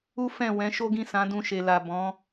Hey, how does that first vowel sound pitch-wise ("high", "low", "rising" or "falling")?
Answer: high